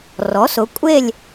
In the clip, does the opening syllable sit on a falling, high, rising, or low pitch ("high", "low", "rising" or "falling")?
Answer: rising